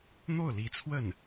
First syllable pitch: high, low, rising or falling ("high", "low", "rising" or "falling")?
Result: falling